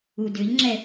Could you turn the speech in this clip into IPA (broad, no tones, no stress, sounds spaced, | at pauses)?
u d ʏ ʎ ŋ͡ǁ ɛ